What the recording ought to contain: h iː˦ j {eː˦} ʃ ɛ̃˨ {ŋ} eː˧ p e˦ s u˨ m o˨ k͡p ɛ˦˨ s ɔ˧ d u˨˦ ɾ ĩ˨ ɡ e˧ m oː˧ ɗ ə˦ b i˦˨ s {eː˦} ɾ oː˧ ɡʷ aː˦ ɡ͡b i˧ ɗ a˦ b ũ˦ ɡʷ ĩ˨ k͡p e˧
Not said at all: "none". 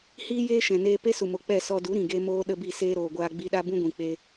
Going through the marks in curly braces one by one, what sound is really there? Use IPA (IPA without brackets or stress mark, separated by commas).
eː˦, n, eː˦